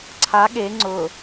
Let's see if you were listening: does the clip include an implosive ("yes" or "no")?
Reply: yes